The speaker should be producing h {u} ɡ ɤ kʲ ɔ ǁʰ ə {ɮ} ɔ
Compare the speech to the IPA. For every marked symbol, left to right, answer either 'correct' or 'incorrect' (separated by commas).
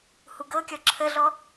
correct, correct